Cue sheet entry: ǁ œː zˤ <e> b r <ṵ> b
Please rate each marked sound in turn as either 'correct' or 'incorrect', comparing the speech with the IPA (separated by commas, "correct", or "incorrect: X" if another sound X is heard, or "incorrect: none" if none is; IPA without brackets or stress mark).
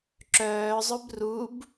incorrect: ø, incorrect: u